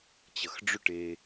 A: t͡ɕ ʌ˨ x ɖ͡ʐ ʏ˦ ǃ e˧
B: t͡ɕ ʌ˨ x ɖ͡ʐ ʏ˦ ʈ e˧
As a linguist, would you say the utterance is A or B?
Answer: B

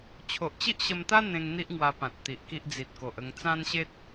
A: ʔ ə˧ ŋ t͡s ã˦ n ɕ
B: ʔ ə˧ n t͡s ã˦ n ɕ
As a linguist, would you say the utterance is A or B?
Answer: A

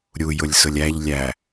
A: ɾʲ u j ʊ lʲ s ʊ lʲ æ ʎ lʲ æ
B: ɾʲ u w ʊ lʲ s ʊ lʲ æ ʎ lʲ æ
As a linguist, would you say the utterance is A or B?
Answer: A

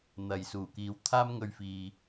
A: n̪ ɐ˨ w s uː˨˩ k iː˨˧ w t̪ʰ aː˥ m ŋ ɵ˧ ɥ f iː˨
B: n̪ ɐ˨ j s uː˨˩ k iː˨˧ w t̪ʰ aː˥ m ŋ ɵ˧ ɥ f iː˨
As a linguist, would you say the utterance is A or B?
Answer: B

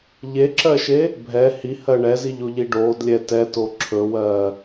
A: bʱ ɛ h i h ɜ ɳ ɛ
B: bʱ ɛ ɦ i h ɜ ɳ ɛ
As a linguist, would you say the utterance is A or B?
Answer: A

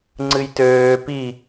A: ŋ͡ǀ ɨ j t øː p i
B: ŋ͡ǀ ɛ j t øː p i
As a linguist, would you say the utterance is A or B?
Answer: A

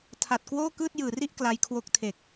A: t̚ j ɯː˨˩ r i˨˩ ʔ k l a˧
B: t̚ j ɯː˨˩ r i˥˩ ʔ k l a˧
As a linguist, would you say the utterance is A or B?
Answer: B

